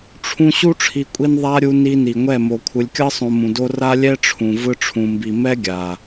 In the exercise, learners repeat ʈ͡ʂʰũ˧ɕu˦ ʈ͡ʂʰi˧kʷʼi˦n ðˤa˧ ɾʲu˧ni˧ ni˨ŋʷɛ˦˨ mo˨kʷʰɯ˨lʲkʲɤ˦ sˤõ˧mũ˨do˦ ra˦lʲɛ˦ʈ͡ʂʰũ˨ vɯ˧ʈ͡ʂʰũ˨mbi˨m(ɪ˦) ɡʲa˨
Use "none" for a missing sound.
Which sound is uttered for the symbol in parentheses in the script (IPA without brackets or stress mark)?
ɛ˦